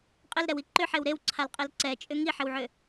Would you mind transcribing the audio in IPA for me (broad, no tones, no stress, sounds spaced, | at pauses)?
qʼ ɪ l ɾ ɛ w i ǃ ʏ ħ e w ɾ e w ǀʰ a l qʼ ɛ l ǀ ɛ t͡ʃʼ ʏ ŋ i ħ ɪ w ʕ ʏ